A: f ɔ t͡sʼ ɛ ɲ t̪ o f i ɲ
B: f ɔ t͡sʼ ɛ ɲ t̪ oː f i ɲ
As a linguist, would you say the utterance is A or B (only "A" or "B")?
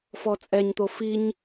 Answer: A